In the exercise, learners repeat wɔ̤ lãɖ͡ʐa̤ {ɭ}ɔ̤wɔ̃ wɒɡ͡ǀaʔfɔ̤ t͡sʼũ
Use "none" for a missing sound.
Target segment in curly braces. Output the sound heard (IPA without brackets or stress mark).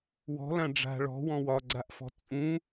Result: ɭ